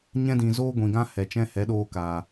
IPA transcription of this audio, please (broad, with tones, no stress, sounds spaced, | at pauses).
ɲ ɛ̃˧ d ĩ˨ z oː˦ ɡʷ ĩ˨ ɡ ã˦ h ɛ˨ t͡ʃ ɛ̃˦ h ɛ˨˦ ɗ oː˧ k aː˨